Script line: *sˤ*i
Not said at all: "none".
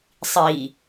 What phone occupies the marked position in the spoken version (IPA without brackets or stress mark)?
sˤ